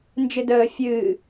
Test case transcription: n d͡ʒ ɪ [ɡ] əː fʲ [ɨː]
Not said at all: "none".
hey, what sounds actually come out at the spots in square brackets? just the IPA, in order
d, ɨː

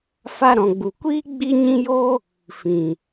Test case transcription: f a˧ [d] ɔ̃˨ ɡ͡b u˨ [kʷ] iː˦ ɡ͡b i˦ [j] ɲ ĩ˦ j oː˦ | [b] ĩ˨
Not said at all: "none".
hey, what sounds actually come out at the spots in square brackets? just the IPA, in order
ɾ, kʷ, none, f

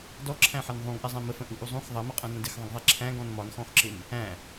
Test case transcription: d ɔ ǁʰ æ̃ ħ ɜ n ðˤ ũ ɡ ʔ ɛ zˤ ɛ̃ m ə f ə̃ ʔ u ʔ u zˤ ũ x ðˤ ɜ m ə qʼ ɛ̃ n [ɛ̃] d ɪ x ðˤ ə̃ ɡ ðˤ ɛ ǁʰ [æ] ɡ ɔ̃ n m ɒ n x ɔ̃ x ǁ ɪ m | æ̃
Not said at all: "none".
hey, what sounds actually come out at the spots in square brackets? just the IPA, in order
ə̃, æ̃

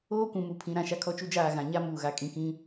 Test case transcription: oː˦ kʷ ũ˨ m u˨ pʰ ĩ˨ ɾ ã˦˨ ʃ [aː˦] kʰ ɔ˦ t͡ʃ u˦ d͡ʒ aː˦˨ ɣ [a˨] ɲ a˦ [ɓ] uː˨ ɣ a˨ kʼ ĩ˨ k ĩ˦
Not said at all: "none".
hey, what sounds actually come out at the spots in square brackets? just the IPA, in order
a˦, ã˨, m

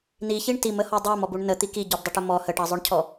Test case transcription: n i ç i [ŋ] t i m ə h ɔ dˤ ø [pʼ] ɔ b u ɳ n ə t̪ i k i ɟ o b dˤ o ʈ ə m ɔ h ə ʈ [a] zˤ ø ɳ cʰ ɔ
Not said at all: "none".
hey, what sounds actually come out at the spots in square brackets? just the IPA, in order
ɳ, m, ɑ

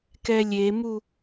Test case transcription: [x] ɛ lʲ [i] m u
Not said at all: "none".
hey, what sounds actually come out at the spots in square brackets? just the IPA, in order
k, e

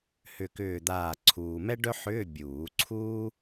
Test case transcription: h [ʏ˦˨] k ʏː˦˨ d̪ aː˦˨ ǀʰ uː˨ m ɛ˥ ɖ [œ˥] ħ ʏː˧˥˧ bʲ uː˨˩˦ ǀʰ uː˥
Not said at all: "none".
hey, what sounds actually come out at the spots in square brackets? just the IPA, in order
ʏ˦˨, œ˥

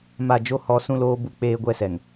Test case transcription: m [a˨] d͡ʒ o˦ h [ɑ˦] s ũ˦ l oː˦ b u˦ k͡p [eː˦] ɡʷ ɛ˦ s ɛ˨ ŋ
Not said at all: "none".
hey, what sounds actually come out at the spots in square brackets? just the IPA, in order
a˦˨, ɔ˦, eː˦

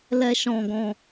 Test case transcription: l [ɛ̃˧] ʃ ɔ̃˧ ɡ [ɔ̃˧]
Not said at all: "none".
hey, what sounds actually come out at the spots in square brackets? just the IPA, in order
ɛ˧, ɔ̃˧

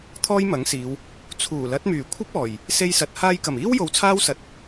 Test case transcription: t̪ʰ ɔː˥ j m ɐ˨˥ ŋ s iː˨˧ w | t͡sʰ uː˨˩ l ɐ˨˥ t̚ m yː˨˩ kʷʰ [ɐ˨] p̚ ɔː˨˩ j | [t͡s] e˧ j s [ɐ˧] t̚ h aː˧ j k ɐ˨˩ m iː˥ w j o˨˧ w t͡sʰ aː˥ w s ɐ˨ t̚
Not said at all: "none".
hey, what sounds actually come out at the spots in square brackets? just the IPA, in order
ɐ˥, s, ɐ˨

